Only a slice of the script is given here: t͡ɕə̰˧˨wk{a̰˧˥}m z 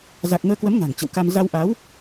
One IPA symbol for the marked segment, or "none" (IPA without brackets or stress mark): a˧